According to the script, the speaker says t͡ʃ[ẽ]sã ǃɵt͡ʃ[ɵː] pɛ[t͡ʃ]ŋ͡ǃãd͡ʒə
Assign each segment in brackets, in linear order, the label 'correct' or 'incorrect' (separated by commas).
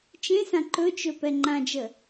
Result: correct, incorrect, incorrect